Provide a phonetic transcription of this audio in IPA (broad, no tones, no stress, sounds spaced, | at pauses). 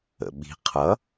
ə̰ ɓ i̤ qʰ ʌ